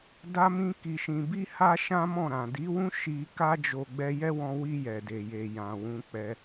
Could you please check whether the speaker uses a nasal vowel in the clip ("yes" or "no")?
yes